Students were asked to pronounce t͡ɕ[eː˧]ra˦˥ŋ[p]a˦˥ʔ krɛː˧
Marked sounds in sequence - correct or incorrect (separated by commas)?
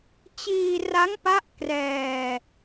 incorrect, correct